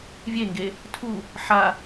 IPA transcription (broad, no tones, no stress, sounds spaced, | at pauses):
vʲ e ŋ ɡ e | tʰ u | ħ a